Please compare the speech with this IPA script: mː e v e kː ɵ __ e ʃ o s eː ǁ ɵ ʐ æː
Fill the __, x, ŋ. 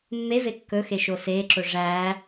x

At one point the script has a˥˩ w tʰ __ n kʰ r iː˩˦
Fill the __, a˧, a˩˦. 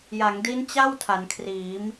a˩˦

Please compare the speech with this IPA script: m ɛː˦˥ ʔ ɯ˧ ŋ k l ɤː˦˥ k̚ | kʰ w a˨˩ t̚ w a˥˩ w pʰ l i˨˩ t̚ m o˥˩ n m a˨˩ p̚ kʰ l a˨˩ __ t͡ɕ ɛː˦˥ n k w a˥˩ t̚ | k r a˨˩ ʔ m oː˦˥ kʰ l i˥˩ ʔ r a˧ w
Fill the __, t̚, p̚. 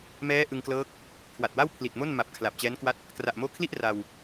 p̚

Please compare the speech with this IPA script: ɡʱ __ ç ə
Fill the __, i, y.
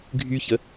y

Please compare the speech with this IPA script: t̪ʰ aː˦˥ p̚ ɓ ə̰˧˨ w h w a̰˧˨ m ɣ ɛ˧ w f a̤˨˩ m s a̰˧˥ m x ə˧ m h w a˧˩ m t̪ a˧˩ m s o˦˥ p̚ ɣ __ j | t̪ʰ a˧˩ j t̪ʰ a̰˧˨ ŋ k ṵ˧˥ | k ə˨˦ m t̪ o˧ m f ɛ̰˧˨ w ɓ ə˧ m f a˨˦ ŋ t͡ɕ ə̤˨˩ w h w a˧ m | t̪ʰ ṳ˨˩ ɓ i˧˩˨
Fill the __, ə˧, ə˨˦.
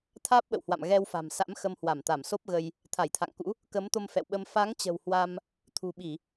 ə˧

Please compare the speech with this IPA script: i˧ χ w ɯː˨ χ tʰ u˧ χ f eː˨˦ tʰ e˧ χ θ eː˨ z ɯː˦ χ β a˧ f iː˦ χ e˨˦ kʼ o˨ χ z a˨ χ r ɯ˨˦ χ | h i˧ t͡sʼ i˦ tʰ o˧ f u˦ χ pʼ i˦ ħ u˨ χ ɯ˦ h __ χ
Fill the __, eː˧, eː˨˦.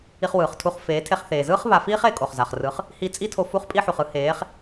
eː˨˦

